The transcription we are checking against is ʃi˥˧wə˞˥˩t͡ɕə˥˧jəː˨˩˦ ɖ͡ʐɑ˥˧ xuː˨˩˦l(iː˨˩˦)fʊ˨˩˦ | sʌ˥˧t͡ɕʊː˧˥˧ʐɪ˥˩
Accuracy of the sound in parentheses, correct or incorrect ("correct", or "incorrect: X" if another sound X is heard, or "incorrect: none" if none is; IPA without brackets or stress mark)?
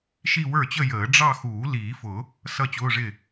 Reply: correct